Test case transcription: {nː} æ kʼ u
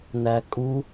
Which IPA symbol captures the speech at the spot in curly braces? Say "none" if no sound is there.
n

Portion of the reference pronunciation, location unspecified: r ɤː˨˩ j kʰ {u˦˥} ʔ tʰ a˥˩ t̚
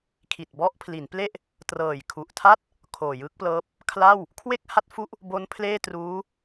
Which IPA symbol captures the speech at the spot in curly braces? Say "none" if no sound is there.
u˨˩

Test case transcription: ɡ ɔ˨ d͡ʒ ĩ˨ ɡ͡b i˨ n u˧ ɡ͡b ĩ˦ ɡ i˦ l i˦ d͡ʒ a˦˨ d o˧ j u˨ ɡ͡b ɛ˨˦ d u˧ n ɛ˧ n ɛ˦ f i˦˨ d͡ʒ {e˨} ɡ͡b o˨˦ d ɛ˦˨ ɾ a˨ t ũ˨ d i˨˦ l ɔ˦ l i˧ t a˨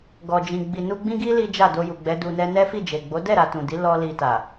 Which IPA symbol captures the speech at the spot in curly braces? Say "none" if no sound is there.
e˨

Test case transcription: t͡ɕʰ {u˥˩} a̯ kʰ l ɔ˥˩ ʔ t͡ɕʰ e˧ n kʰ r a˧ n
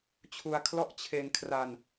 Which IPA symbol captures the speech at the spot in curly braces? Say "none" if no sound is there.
u˧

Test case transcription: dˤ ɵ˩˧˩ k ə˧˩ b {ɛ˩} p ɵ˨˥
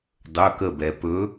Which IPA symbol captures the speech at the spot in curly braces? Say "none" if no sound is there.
ɛ˩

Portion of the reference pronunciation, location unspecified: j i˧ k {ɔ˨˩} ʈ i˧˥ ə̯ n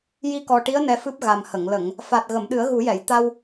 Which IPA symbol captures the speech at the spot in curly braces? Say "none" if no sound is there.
ɔ˨˩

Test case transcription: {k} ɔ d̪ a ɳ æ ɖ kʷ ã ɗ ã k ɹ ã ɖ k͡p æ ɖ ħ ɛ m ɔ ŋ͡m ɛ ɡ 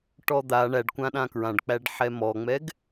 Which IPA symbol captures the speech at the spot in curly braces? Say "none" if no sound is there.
ʈ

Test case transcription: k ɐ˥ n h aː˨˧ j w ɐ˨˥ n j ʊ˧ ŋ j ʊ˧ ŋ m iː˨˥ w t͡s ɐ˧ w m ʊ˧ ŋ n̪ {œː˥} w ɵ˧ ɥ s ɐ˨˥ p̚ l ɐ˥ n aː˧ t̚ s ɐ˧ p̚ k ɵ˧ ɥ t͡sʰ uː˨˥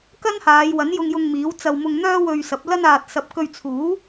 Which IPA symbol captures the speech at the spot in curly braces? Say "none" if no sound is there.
œː˥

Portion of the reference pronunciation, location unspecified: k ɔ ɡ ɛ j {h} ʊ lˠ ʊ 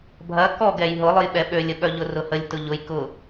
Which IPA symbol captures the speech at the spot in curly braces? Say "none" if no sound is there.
ɦ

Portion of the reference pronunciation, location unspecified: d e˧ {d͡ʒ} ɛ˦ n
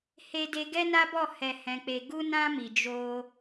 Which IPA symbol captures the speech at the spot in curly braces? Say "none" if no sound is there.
ɡ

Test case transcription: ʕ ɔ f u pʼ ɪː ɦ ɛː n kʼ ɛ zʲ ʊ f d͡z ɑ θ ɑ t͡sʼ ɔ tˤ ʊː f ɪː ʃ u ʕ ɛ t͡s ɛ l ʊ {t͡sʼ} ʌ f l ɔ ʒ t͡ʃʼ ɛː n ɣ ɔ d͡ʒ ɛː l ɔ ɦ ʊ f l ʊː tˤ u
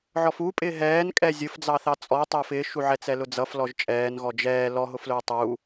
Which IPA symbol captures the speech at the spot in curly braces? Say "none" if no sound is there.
d͡z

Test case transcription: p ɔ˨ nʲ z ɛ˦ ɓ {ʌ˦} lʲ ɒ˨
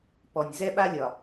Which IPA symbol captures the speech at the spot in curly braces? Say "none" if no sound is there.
a˦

